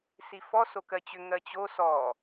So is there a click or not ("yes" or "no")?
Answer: no